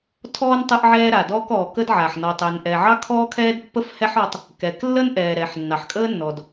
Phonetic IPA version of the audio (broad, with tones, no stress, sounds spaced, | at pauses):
tʰ ɔː˥ n tˤ ə˥ ʔ ʕ ɛː˥ ɾ a˩ d ɔː˥ k ɔː˩ k ə˥ d ʕ a˩ ħ n ɔ˩ tˤ ɛ˩ n ʔ ɛ˩ ʕ ɑ˥ kʰ ɔː˥ kʰ ɛː˥ d pː ə˥ f h ɛ˥ ħ ɔ˥ tˤ | k ɛ˩ k lː ə˥ n ʔ ɛː˩ ɾ ɛː˩ ħ nː ɑ˩ ħ kʼ əː˥ nː ɔ˩ d